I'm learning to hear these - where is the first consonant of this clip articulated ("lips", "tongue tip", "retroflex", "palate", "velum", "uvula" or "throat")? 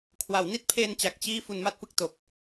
velum